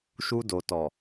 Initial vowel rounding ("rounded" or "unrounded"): rounded